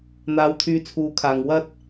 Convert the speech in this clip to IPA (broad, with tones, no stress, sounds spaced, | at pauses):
n̪ aː˨ w t̪ʰ yː˨˧ t͡sʰ uː˨˧ kʰ aː˨ ŋ w ɐ˧ t̚